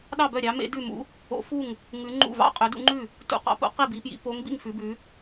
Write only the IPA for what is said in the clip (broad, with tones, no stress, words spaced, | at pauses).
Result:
ɗɑ˥˨bœ˥˨ɾʲɑ˧˥mḛ˧˥ dʉ˥˨mṵ˧˥ | o̰˧˥fu˥˨ŋ | ŋʉ˧˥ŋ͡ǃṵ˥˨vɑ̰˥˨ qʼø˧˥dṵ˧˥ŋ͡ǃʉ˥˨ | tṵ˧˥qɑ̰˧˥po̰˧˥ qi˥˨bi˧˥pjḭ˧˥ po˧˥ŋbḭ˥˨ŋ fʉ˧˥bʉ˧˥